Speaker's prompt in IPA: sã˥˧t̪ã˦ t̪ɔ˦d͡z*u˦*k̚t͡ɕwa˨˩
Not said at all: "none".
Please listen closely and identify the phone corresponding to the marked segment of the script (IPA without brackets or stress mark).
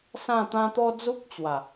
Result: u˦